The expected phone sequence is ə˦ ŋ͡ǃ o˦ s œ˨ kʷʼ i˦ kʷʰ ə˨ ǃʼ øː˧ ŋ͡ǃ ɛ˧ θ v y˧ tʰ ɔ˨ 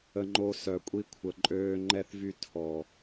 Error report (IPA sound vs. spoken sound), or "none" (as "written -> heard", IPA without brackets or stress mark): none